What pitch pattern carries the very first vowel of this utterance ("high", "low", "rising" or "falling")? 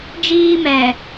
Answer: high